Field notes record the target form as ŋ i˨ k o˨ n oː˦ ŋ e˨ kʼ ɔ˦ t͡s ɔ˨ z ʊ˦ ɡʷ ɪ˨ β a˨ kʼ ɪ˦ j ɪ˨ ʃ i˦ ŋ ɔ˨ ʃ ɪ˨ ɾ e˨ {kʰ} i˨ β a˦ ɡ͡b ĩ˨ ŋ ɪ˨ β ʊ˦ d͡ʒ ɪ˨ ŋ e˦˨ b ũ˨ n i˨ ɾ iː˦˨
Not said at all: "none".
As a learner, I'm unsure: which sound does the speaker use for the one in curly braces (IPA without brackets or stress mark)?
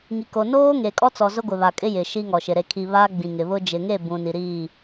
kʰ